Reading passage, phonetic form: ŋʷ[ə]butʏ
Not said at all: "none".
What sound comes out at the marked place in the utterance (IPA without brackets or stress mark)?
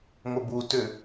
ə